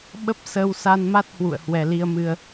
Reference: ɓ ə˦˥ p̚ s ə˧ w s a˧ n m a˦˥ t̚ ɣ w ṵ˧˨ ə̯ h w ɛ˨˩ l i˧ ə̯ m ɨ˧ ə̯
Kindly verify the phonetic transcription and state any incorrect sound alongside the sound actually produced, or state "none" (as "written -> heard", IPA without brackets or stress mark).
ɣ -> h